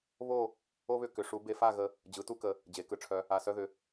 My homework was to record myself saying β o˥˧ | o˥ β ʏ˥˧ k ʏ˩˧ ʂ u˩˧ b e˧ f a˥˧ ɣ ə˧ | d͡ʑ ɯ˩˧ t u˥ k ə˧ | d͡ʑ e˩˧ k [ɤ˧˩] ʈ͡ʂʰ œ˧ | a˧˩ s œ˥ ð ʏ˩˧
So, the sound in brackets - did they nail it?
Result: no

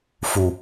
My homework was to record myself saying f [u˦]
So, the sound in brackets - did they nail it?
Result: no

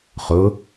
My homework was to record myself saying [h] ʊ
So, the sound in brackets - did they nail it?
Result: no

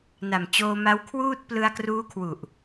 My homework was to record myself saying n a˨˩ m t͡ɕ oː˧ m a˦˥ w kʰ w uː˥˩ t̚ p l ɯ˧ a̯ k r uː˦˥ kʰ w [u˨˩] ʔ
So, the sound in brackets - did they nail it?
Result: yes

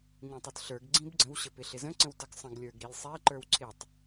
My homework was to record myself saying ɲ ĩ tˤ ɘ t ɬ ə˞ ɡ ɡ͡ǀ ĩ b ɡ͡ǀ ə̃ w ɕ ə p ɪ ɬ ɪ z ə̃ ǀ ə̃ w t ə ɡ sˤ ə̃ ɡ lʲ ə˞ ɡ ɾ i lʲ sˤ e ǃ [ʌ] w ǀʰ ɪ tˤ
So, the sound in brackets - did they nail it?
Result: no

